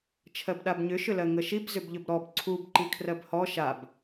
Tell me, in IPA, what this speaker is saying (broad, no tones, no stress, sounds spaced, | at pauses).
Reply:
t͡ʃʰ ɜ b ɗ a b ɲ ʏ ʃ ʏ l ɜ ŋ ə ʃ i b z ʏ b ʎ ʏ b ɾ ɔ b ǀʰ u b ǃ i kʰ r ɜ b h ɔ ʃ a b